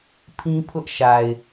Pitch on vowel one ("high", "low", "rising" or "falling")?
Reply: high